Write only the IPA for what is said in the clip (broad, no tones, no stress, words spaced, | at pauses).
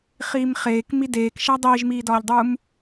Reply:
χiːmχeːk mideːkʃæ dˤiːʒmiːdɒːʎdˤuːm